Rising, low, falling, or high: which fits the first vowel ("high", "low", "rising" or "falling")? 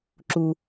low